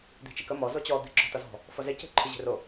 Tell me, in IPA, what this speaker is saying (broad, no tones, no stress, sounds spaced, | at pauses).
d̪ i̤ t͡ʃ i k ə m ɔ z o t͡ɕ ɔ d̪ i̤ ǁ ɔ̤ t ʌ z ɔ̤ | f ʌ z e c e̤ ǃʰ ɯ ʑ e̤ r o